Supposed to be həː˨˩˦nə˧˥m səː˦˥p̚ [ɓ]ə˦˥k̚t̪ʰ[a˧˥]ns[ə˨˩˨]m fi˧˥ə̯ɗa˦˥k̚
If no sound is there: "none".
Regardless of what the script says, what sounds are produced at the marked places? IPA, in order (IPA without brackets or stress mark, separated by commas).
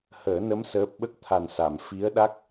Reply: ɓ, a˨˩, a˨˩˨